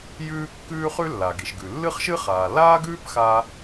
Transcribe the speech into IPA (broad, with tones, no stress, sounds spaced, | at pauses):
j ʉː˥ kː ʉː˥ χ ʉ˥ lː a˩ ɡ i˩ ʃ ɡ ʉ˩ lː ɨ˥ χ ʃ ɨ˥ χ aː˩ l aː˥ ɡ ʉː˥ p x aː˧